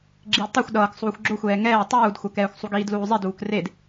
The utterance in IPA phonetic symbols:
ɡ͡ǁ iː d tˤ ɛ xʷ ɗ ʌː k sˤ uː xʷ ɡ͡ǁ o xʷ ɛː ŋ ɛː tˤ uː d xʷ ʌ k ɛː xʷ sˤ u ɡ iː d l uː zˤ i d uː k r e d

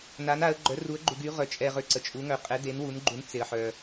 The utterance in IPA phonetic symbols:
n a˨˦ n a˨˦ ə̯ ɡ͡ǃ œ˨˦ r u˨˦ ə̯ ɡ͡ǃ u˨ ɡ y˨˦ ʁ œ˨ t͡ʃʼ ɛ˨ ʁ ø˨ ǀ ə˨ t͡ʃʼ u˨˦ ŋ œ˨ qʼ ɛ˨˦ d e˨˦ n w u˨˦ n ɡ͡ǃ u˨˦ n t͡s e˨ ə̯ ħ œ˨

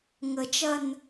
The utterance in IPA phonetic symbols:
ŋ ə t͡ʃ ɐ n

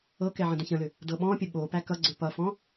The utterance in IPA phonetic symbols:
ɤ k ɛ ʕ ə̃ d ə̃ ç ə̃ l ʏ | d ɤ ɓ ɔ̃ pʲ ə ɓ o p æ k ʌ ɡ͡ǀ ʏ p ʌ f ɔ̃

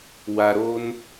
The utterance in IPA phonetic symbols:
w a˧ ɾ o˦ n

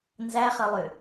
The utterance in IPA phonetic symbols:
n z æ χ ɐ lˠ ʏ

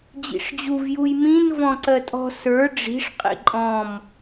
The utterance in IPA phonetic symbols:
d͡ʑ ḭ ʂ d͡ʑ u v j u j m ĩ n v ɔ̃ ǀ ɜ tʼ ɔ̤ s ə˞ ɖ͡ʐ i̤ ʂ qʼ ḭ ǃʼ ɔ̃ m

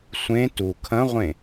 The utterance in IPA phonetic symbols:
sʷ ẽ t u kʰ ɐ̃ ʁʷ ẽ

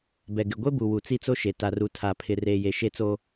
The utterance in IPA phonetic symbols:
b ɛ˨ ɡ ɪ˨ ɡʷ e˦ b u˨ w u˨ t͡s i˦ t͡s o˦ ʃ e˨ t a˨ r u˨ tʰ a˨ pʰ ɪ˨ r eː˨ j e˨ ʃ e˦ t͡s o˦

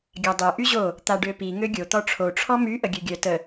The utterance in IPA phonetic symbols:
ɡʲ a dˤ ø ʔ y ʑ o | t̪ a ɖ ø p i ŋ ø ɡʲ o t̪ ɔ ʈ͡ʂʰ o ʈ͡ʂʰ ɔ m y ʔ ə ɡʲ ø ɡʲ œ t ə

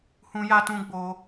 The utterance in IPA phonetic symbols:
h ũ˧ j a˧ t ũ˧ ɡ͡b o˧

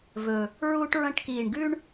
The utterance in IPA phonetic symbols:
v ɵ˨˩ | ɹ uː˦ ʈ ɹ ɐ̃˦ ʈ k iː˨˩ ɳ ɡ ʉ˦ ɳ

